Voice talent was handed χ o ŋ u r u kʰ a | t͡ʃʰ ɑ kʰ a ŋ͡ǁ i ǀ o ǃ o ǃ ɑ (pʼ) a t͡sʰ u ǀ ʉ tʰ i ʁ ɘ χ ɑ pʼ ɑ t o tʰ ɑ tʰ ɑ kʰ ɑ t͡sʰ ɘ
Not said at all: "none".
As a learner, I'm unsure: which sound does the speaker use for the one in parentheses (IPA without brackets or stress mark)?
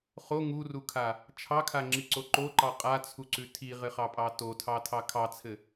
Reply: qʼ